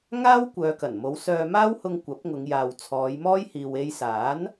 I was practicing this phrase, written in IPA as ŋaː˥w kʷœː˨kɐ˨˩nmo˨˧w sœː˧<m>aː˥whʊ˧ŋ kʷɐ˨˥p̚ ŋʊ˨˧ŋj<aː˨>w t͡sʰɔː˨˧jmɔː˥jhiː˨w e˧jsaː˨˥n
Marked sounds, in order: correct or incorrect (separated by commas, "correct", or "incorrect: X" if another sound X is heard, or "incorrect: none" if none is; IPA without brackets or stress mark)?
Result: correct, correct